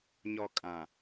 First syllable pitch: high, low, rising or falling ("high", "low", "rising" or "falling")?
low